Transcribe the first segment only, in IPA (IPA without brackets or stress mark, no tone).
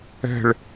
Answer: ɛ̤